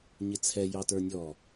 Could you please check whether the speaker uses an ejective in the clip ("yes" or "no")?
no